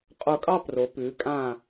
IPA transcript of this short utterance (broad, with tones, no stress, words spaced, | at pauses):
qʼo˧˩kʼɑ˥˧ pro˩˧pʉː˩˧ kʼãː˧˩